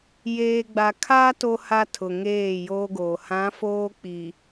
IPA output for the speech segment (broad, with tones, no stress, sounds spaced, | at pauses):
j eː˨ ɡ͡b a˨ kʰ aː˦ t o˨ h a˨ tʰ ʊ˨ ŋ eː˦˨ j oː˦ ɡ oː˨ h ã˨˦ f oː˦ k͡p i˨